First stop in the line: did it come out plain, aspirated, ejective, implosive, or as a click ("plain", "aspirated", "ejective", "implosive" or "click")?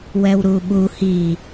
implosive